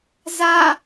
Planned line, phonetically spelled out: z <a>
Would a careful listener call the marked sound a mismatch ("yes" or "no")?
no